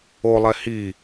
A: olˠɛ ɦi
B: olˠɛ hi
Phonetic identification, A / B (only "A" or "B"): B